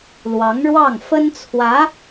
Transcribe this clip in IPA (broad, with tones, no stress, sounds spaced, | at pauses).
l w ɑ˧˥ ŋ ɻ w ɑ˥˩ ŋ f ə˥ n t͡sʰ w ä˧˥